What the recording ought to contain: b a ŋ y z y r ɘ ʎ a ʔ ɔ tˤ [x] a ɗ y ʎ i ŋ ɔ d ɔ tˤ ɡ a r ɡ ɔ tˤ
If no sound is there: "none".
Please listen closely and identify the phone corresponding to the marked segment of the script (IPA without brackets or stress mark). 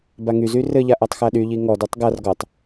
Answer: x